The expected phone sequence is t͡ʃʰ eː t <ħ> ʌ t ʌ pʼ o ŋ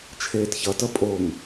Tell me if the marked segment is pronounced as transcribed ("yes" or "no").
no